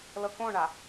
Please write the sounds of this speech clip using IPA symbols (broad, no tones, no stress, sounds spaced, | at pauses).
l ɤ k õ ɳ a